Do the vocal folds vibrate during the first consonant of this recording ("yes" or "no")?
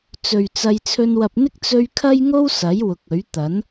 no